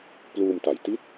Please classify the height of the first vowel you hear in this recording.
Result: high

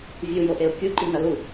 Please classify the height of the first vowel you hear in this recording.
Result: high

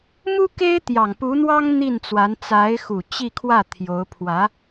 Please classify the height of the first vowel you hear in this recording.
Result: high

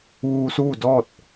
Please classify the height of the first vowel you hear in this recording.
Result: high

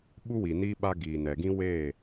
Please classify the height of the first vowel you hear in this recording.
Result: high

